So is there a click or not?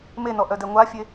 no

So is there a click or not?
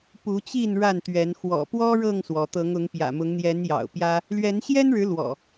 no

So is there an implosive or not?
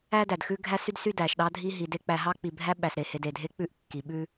yes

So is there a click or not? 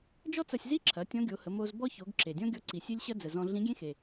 yes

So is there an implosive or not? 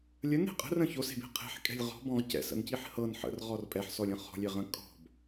no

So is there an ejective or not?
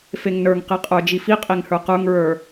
yes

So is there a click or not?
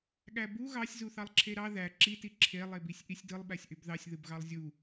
yes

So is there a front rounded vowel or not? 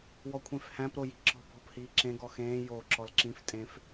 no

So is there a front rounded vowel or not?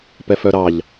yes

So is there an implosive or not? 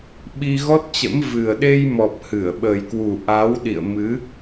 yes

